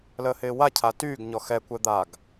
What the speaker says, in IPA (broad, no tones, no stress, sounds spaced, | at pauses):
l əː h ɪː w a cʰ a t yː ɡ ɲ ɔ x ɛ kʷ ɛ d̪ a ɡ